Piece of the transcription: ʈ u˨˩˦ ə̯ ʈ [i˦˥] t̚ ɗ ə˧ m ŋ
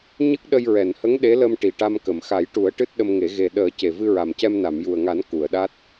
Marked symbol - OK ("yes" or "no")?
no